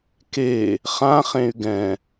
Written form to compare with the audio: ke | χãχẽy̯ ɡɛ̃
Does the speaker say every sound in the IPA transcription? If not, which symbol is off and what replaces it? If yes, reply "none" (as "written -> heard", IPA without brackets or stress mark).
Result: none